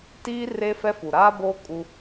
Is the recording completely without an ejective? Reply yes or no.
no